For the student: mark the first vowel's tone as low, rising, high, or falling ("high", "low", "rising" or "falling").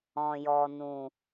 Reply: low